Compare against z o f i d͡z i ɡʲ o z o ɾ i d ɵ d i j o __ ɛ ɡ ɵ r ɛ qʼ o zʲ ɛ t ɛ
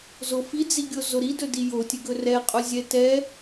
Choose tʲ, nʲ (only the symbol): tʲ